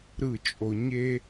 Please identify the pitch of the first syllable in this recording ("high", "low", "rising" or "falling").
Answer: falling